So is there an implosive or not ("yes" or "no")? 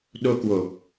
yes